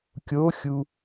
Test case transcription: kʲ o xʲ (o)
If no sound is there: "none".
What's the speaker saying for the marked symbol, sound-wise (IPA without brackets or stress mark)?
u